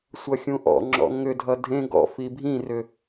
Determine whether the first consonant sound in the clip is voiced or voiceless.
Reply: voiceless